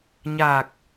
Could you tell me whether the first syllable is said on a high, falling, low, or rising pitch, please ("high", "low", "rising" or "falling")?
low